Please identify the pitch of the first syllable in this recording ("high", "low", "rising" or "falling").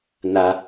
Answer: high